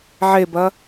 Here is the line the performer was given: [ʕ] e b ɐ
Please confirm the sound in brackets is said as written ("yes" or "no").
yes